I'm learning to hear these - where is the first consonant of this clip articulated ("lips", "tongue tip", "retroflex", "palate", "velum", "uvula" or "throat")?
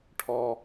retroflex